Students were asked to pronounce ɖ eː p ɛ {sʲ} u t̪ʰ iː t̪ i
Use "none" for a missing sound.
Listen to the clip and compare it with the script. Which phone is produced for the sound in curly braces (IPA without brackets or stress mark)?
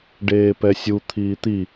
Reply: sʲ